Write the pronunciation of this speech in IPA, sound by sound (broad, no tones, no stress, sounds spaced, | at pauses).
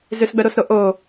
z ʏ s ɡ͡b œ ɾ o s ɾ o ʔ o